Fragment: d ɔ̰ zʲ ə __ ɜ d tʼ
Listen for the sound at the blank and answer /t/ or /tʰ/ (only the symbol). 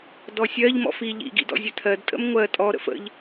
tʰ